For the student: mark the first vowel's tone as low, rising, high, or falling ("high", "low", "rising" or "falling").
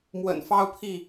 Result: low